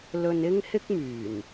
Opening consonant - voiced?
yes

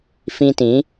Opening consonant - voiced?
no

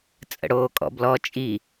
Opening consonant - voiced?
no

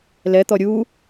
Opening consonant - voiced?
yes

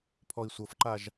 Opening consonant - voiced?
no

